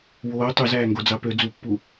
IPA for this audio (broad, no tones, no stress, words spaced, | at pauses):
woː tˤøzæːŋɡod͡zɑ pø d͡zupːu